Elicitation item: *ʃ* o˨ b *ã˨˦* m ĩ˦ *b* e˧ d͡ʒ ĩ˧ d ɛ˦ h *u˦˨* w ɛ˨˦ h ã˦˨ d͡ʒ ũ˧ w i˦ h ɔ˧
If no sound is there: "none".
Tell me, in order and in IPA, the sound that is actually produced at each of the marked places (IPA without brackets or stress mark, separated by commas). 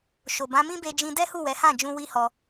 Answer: ʃ, ã˨˦, b, u˦˨